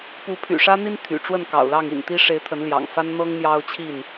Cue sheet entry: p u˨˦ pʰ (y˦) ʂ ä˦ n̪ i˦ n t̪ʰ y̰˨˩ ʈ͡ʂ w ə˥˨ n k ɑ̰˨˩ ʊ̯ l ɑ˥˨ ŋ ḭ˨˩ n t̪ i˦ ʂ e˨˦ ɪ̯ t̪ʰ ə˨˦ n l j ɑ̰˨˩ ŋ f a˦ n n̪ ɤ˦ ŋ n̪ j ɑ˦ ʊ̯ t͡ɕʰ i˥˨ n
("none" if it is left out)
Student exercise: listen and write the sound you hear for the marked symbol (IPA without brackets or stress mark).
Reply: y̰˨˩